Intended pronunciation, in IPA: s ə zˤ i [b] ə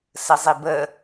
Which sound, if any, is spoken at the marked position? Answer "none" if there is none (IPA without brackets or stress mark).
b